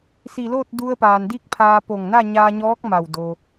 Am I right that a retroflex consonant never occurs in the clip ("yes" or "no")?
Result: yes